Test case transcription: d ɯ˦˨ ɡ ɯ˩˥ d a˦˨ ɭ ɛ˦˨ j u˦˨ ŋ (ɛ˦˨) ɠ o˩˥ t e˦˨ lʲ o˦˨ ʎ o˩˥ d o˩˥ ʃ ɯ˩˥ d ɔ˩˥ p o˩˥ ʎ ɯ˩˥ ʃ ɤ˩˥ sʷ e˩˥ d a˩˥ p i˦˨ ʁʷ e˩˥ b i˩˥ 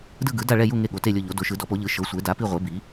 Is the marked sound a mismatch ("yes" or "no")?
yes